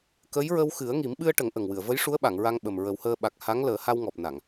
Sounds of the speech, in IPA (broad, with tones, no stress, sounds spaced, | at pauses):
k ə˧˥ j ɹ ə˧ w x ɨ˨˩˦ ə̯ ŋ i˨˩˦ m ɓ ɨ˧ ə̯ ʈ ə˨˩˦ ŋ ʔ ə˨˩ ŋ w ɨ˨˩˨ ə̯ v ə˧˥ j ʂ u˧˥ ə̯ ɓ a˨˩˨ ŋ ɹ a˧ ŋ ɓ ə˨˩ m ɹ ə˨˩˦ w h əː˧ ɓ a˨˩ k̚ h a˧˥ ŋ l əː˨˩˦ h a˧ w ŋ ɔ˨˩ p̚ n a˨˩˨ ŋ